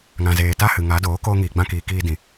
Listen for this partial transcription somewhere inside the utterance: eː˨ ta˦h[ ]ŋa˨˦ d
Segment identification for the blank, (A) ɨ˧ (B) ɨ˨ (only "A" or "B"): B